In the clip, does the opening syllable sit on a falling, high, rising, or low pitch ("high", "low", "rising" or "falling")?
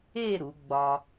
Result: falling